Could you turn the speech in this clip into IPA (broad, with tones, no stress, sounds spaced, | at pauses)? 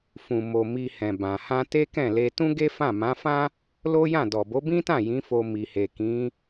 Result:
f ũ˨ m o˨ m i˧ h ɛ̃˨ b ã˨ h ã˧ t e˦ k ɛ̃˦˨ l e˧ t ũ˦ ɡ e˦ f ã˦˨ m ã˨˦ f ã˦ | l o˦ j ã˦˨ d ɔ˨ b o˨˦ b ĩ˦ t ã˦˨ j ĩ˨˦ f o˧ m i˨ h e˨ k ĩ˨˦